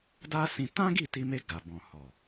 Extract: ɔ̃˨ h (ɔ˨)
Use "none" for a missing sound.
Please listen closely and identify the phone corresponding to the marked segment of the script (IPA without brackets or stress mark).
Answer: ɔ˨